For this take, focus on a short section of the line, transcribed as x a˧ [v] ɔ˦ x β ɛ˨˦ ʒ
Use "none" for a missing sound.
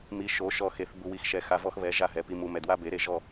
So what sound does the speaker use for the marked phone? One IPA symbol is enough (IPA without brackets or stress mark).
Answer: v